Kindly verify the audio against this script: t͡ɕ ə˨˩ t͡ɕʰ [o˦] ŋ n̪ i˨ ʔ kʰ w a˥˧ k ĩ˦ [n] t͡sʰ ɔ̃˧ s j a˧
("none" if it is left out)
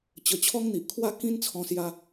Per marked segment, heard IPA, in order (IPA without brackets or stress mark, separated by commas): ɔ˦, n